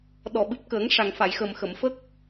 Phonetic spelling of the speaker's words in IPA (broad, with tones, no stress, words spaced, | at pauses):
ɗɔ˨˩˨ɓɨ˨˩p̚kəː˨˩˦ŋ ʂa˨˩ŋfa˨˩˨jxəː˨˩m xə˨˩˨mfə˦˥k̚